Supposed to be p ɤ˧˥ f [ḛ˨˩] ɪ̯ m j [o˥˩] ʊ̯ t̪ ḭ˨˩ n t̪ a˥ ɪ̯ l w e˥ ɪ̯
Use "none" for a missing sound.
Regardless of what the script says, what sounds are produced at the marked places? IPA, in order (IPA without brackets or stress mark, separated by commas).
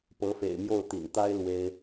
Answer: ḛ˨˩, o˥˩